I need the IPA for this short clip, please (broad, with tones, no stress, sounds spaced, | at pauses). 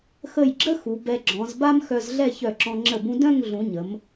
x ə˧˩ j ɡ͡ǁ ə˥ x u˩˧ b ɛ˧ ɡ͡ǁ ɔ̃˩˧ z b a˥ m x œ˧ z ɮ ɛ˥˧ ç œ˧˩ ǁ ɔ̃˧ ŋ͡ǁ ə˧˩ b ũ˧ d œ̃˥˧ ŋ ɮ ũ˩˧ ɲ ə˩˧ m